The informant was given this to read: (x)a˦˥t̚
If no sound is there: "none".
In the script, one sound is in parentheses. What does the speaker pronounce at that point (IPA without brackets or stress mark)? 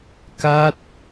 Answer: k